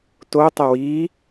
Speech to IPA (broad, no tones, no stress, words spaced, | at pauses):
totˤə wiː